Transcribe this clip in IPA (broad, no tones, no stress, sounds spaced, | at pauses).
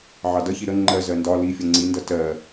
ʕ ɑ d ʌ ç i ɾ ə ŋ͡ǃ ɜ z ɜ n d ɒ l i fʲ ʌ ŋ͡ǀ i n d ʌ t ɜ